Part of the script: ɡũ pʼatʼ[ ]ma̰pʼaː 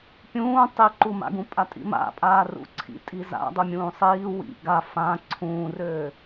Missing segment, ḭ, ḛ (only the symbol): ḭ